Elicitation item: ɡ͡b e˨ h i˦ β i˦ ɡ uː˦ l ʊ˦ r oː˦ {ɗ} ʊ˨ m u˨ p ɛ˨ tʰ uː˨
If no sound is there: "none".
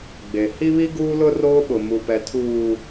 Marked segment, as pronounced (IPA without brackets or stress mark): ɓ